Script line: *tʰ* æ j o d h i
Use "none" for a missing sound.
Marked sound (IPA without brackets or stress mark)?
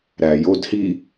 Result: ɾ